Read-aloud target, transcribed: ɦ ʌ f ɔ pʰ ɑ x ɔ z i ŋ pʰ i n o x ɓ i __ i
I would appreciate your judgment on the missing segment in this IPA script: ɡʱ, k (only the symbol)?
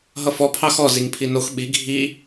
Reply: ɡʱ